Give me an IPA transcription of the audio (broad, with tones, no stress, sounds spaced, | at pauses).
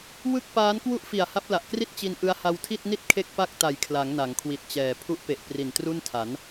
w ɯ˥˩ k̚ p aː˦˥ n k w u˥˩ ʔ f i˨˩ a̯ h a˦˥ p̚ l a˨˩ ʔ k r i˥˩ t̚ t͡ɕ i˧ n ʔ ɯ˦˥ a̯ h a˧ w tʰ i˥˩ t̚ n i˥˩ t̚ kʰ e˥˩ k̚ p a˥˩ k̚ t a˨˩ j kʰ l a˩˦ ŋ n a˩˦ ŋ kʰ w i˨˩ t̚ t͡ɕ ɛː˨˩ pʰ u˦˥ ʔ p e˨˩ ʔ p r i˨˩ n t r u˥˩ n tʰ a˩˦ n